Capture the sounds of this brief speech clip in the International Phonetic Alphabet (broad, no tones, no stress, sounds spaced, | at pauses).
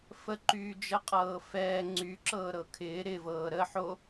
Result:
f ə ǃ yː d͡ʒ ə qʼ ɤː f ɛː ŋ͡ǀ y ǁ ɤː ɾ ɤ kʰ ɪː ɾ ɪ v ɤː ɾ ə ħ o